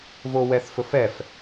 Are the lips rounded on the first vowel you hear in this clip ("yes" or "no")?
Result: yes